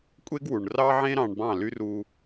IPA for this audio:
kʷʼ e˦ ɡ w u˨ ɳ r ɑ˦ ʕ ẽ˦ ɾ ɑ̃˧ ɳ b ɑ̃˦˨ l y˦ r u˧

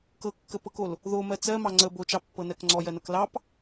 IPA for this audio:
k ɤ kː ə p ɤ k o l | ð o m ɜ t͡s ɜ m ɑ ŋ͡ǀ ə b o t͡ʃ ɑ pː ɤ n ɜ k ŋ͡ǀ ɔ j ɜ n ɤ k l ɑ p

